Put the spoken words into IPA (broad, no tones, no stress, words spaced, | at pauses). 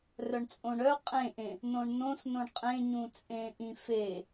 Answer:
rœɳt͡sʼõɳœ qʼẽʔẽ | nõɳnõsnõɳ qʼẽɲũt͡sʼẽ ʔĩfe